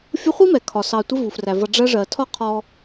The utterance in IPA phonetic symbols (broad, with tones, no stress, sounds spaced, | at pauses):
fʲ ʊ˦ χʷ i˥ m ɛ˩ kʰ ɒ˩ s ɑ˨ tʷ ɪ˦ v u˩ f r æ˩ v ʌ˨ ɖ͡ʐ ɜ˦ ʐ ɜ˩ tʰ ɒ˥ qʰ ɔ˨